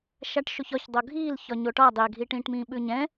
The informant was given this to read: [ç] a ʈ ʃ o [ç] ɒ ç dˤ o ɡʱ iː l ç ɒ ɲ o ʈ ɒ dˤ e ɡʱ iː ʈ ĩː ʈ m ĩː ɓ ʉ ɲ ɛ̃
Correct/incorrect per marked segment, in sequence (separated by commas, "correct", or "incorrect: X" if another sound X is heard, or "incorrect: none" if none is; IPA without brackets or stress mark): incorrect: ʃ, correct